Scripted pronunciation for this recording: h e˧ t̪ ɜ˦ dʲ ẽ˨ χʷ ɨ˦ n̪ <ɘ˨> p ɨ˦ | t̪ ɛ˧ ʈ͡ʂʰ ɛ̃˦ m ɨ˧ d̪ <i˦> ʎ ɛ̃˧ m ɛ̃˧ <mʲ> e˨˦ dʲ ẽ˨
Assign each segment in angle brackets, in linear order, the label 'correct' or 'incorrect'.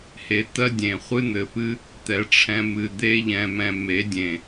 correct, incorrect, incorrect

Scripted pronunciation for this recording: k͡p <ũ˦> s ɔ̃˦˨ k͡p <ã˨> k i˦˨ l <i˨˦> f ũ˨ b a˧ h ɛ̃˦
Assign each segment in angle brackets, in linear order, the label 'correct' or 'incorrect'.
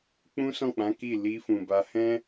correct, incorrect, incorrect

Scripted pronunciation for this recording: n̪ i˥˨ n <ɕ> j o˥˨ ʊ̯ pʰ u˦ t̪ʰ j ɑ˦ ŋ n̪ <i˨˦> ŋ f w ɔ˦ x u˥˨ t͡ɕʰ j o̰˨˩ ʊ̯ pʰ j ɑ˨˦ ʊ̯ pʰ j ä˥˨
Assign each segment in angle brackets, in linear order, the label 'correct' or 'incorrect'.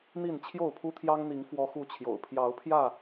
incorrect, correct

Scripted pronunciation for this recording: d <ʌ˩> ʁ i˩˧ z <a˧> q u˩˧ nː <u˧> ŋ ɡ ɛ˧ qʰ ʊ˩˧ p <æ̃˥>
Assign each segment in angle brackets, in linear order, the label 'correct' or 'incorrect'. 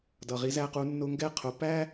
correct, incorrect, incorrect, incorrect

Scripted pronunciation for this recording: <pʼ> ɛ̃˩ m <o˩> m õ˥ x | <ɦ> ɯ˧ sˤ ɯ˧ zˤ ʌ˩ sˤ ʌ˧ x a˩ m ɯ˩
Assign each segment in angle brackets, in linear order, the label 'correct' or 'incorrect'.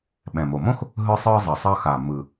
incorrect, correct, correct

